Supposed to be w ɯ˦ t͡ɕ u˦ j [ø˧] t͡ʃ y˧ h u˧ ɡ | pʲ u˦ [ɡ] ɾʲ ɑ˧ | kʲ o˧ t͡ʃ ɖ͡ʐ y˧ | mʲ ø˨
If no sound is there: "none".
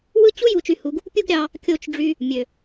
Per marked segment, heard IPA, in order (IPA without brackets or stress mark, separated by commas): u˧, ɡ